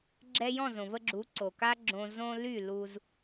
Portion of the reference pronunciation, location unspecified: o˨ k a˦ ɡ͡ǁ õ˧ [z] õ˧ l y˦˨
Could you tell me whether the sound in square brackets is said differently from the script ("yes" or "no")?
no